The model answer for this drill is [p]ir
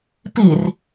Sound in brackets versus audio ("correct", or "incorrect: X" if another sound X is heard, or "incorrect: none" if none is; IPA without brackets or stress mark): correct